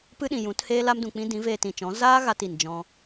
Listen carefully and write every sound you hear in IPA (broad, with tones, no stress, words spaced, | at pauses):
pɨ˦ɗĩ˨jũ˨˦theː˦ la˦mdũ˨k͡pĩ˦ dĩ˨˦veː˧tĩ˨t͡ʃɔ̃˨˦ zaː˦ ɣa˦ti˨n d͡ʒɔ̃˧